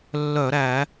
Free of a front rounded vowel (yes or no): no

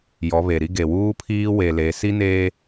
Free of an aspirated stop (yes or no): no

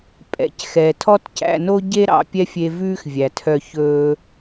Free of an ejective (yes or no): no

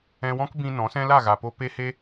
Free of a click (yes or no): yes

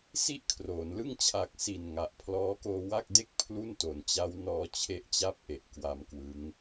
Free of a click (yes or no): yes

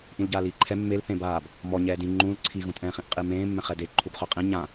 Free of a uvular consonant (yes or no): no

